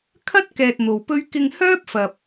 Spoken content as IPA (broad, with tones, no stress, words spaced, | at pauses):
kʰɐ˥t̚ kɛː˧t̚n̪o˨wpɵ˥ɥ kɪ˧ŋhœː˥p̚fɐ˨p̚